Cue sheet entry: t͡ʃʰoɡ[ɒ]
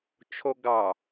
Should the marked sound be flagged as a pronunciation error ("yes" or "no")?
yes